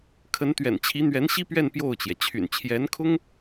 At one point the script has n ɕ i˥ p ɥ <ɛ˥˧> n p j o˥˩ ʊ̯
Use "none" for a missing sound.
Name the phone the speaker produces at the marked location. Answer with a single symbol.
ɛ˥˧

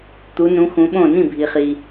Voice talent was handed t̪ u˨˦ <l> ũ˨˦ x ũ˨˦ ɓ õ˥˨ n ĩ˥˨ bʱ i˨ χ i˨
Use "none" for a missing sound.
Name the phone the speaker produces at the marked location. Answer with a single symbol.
n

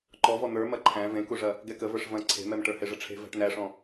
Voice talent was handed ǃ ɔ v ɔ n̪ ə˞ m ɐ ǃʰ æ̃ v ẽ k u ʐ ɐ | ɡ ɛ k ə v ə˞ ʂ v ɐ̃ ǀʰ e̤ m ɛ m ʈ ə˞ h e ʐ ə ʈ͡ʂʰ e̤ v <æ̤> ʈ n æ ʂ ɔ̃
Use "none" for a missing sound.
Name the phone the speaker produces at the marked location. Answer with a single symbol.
æ̤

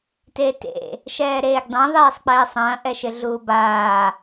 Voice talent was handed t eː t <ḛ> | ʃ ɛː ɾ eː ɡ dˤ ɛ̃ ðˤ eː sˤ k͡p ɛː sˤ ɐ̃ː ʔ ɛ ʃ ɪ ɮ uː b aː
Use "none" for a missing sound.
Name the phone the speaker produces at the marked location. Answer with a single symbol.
ḛ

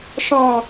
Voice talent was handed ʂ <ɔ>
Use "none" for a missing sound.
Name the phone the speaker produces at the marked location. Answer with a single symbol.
ɔ̃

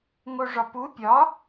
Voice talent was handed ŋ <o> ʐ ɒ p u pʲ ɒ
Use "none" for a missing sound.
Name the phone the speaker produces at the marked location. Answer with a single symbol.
o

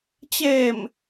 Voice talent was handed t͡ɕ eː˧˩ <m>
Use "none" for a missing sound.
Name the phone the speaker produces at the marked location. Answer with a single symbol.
m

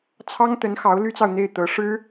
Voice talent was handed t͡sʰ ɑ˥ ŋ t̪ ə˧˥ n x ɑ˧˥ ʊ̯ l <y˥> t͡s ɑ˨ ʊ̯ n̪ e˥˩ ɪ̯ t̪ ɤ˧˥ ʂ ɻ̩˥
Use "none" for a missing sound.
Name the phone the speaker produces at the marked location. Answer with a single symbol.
y˥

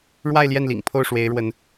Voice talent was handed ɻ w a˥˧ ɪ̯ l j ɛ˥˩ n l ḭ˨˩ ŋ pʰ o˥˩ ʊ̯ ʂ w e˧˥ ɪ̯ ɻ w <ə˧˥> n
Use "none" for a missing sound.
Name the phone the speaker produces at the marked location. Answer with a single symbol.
ə˧˥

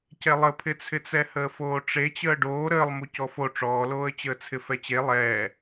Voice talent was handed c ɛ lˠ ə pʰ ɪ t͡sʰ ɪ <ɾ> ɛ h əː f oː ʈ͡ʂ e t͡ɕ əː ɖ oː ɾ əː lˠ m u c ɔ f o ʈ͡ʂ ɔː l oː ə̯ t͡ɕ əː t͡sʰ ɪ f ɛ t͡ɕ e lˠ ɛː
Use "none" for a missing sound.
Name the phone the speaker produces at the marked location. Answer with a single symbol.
t͡s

